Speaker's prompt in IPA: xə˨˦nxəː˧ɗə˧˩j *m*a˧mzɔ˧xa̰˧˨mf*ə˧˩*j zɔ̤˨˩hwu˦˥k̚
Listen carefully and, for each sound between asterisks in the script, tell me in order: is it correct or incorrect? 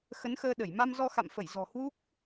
correct, correct

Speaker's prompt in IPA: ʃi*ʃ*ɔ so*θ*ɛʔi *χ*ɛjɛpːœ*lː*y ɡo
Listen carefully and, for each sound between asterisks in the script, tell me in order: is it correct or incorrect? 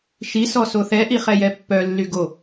incorrect: s, correct, correct, correct

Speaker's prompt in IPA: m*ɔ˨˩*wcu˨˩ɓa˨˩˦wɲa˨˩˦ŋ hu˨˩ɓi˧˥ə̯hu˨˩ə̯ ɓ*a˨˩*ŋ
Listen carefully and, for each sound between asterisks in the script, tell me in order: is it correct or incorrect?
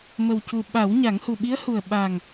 incorrect: ə˨˩, correct

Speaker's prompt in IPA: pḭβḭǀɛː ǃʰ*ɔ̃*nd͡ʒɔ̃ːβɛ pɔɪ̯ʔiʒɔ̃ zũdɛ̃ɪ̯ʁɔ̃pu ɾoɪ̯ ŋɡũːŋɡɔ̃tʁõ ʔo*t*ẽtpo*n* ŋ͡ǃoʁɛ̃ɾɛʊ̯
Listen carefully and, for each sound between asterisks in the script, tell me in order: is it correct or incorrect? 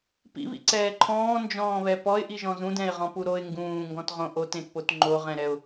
incorrect: ɔ̃ː, correct, incorrect: t

